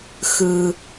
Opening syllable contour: low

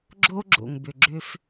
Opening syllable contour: high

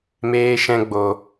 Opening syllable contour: high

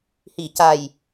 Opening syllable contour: low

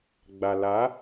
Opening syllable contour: low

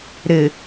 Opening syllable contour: low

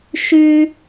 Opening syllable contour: high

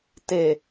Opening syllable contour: low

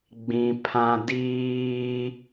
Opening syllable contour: high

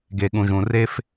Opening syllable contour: low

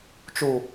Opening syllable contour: low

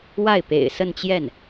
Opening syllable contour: falling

